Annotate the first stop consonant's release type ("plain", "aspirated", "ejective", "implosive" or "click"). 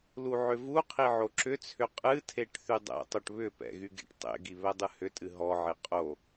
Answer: aspirated